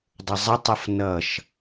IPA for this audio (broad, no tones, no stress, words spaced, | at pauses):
dˤəzˤətˤʌf nʌʃ